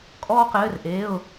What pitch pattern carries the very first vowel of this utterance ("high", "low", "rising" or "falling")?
high